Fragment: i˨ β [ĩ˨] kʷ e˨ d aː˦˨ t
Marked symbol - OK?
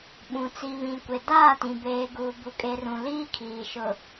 yes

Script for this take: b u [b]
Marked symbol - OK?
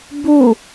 no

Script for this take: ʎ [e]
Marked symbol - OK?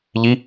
no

